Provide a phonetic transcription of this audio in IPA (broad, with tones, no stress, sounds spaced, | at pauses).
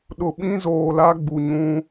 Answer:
ɗ ʊ˨ ɓ ĩ˦ z oː˨ l a˦ ɡ͡b u˨ ɲ ũ˦